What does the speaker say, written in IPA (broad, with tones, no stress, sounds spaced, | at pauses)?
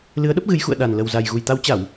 l ɨ˨˦ ə̯ ɗ ə˦˥ p̚ ɣ ɨ˨˦ j x ṵ˧˨ ə̯ ɗ a˨˩ n l ə˨˩ w z a˨˩ j ɣ u˨˩ j t̪ a˨˦ w t͡ɕ a˧˩˨ w